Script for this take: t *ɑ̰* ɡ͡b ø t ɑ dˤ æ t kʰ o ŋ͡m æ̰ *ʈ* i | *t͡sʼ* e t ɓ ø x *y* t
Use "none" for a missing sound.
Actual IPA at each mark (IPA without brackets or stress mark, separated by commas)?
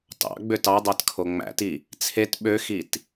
ɑ̰, t, t͡sʰ, i